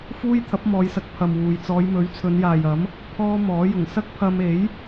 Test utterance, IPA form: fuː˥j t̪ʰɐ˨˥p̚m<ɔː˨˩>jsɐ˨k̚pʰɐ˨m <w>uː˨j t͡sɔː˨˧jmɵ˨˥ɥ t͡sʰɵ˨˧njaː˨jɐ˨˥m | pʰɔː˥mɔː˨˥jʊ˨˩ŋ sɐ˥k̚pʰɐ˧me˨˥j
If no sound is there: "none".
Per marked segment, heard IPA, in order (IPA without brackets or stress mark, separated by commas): ɔː˨˧, w